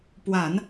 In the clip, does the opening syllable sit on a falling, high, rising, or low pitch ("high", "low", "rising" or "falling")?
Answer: low